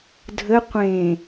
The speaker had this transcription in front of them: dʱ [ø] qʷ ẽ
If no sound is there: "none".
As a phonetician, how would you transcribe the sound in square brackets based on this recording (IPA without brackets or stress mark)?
ə